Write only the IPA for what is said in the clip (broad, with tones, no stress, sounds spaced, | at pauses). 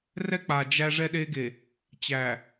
r ɛ˦ k͡p a˨ d͡ʒ æ˦ ʐ ɛ˦ ɗ e˦ ɡ e˨ | t͡ɕ æ˨